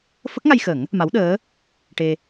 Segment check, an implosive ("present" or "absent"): present